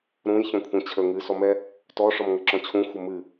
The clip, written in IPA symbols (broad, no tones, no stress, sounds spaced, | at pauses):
ɾ ũ j ç ɔ̃ kʷʰ ə̃ t͡ɕʰ ə ŋ ɨ s ɔ m ɛ | t ɔ ʂ ɔ m ŋ ə ǁ ɔ̃ t͡ɕʰ ũ xʷ ə m ɨ